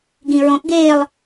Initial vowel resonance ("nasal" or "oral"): nasal